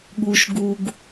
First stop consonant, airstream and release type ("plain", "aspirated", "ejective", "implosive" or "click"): implosive